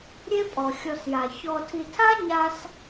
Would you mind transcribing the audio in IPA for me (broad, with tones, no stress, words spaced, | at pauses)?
ɾʲe˥pʼɔ˩ xʲɔ˨sja˩ çɔ˨tʰi˨tʰa˥ ɲa˦s